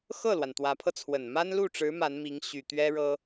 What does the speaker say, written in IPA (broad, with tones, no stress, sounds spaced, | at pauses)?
x ɤ˥˩ l w a˩ n t̪ w ä˧˥ pʰ ɤ˧ t͡sʰ w ə˨˩ n m a˥ n l u˥˩ ʈ͡ʂ ɻ̩˧˥ m a˧˥ n m i˧˥ ŋ ɕ y˨˩ t̪ ɥ ɛ˥ ɻ ɤ˥